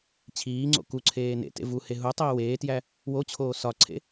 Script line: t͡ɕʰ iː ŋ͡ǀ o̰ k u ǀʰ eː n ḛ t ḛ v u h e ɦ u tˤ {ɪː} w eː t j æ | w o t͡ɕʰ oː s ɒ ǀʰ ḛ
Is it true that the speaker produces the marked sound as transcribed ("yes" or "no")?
no